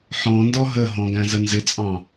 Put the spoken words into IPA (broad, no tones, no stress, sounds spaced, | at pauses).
ħ ɔ̃ n d ɔ ɦ ə ɦ ɔ̃ ɡ æ̃ z ə n z ɪ t͡sʼ ɑ̃